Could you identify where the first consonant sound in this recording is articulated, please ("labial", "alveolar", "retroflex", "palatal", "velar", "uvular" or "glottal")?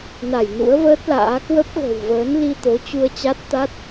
alveolar